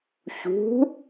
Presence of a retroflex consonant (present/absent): absent